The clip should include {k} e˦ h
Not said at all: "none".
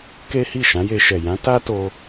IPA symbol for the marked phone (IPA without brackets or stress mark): k